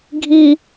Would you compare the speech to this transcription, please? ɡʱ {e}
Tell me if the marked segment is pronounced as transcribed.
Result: no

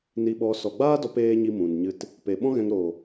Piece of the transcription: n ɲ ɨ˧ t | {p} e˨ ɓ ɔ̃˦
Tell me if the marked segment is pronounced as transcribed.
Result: yes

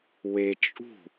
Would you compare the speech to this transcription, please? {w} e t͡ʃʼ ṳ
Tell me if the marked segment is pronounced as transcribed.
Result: yes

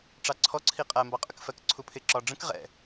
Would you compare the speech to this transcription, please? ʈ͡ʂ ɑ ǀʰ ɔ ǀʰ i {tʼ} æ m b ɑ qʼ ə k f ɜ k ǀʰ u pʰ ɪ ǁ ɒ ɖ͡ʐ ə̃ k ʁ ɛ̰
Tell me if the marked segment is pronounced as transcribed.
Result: no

